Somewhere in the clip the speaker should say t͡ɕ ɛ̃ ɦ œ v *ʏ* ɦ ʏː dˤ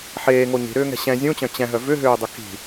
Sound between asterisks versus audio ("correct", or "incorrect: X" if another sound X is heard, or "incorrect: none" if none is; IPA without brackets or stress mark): correct